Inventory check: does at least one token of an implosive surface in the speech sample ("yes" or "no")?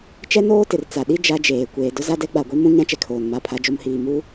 yes